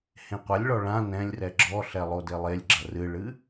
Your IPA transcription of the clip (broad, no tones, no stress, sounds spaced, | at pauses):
h ẽ qʷ a lʲ ɭ ɔ ɭ ã n ɛ̃ lʲ r ɛ ɡ͡ǁ ɔ ɬ ɛ lˠ o d e lˠ e lʲ ɡ͡ǁ ɐ r ɨ ɭ ɨ